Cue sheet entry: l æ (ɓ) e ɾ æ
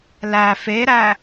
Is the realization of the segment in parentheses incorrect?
yes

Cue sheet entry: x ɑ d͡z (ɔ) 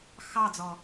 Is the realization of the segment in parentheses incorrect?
no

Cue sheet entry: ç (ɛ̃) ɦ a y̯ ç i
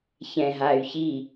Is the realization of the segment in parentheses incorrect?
no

